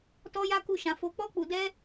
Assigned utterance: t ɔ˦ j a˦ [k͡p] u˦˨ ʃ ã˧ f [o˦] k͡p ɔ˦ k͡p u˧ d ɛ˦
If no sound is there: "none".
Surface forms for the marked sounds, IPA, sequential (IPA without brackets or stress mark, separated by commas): k, o˧